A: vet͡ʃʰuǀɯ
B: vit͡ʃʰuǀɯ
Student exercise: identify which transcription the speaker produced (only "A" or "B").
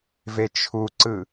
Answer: A